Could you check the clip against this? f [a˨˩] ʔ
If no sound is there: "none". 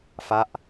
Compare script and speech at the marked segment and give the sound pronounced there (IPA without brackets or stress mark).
a˦˥